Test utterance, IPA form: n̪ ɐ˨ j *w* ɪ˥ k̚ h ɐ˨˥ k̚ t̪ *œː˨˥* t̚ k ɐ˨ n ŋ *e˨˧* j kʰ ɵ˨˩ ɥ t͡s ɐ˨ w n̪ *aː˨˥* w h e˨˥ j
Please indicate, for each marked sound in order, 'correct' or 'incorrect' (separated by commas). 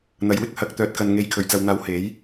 correct, correct, correct, correct